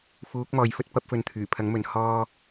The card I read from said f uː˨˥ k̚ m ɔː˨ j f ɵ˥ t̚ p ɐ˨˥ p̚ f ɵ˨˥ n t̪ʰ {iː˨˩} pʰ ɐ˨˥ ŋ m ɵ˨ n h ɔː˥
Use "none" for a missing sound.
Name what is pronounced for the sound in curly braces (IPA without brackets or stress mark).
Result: yː˨˩